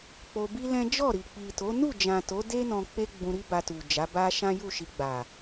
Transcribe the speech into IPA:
k͡p o˧ b i˦ l ɛ̃˦ d͡ʒ ɔ˦˨ ɾ i˨ k͡p i˨ t o˨˦ n u˦˨ d͡ʒ ã˨ t o˨˦ d e˦ n ɔ̃˧ k͡p e˦ ɡ͡b ũ˧ ɾ i˦ b a˧ t u˨ d͡ʒ a˨˦ b a˦ ʃ ã˦ j u˦˨ ʃ i˧ ɡ͡b a˨

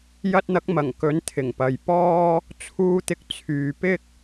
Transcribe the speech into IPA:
j ɐ˧ t̚ n̪ ɐ˨˥ k̚ m ɐ˨˩ ŋ k ɵ˨˥ n t̪ʰ ɪ˨˩ ŋ p ɐ˨ j p ɔː˥ | t͡sʰ uː˧ t̪ ɪ˧ k̚ t͡sʰ yː˨ p ɪ˥ k̚

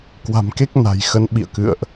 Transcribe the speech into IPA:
k w a̤˨˩ m k e˦˥ k̚ n a̤˨˩ j x ə˨˦ n ɓ ḭ˧˨ ə̯ k ɨ̰˧˨ ə̯ ʔ

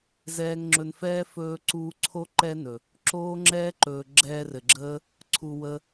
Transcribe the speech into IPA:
z ɛː˧ ŋ ŋ͡ǁ ɵ˧ n f ɛː˦ f ɵː˧ ǀ uː˧ ǀʰ o˦ ǃ ɛ˦ n ɵ˨ | ǁ oː˦ ŋ͡ǁ ɛː˦ ǃ ɵː˨ ɡ͡ǁ ɛː˧ r ɘ˨ ɡ͡ǁ əː˦ | ǀʰ u˨ w ə˧

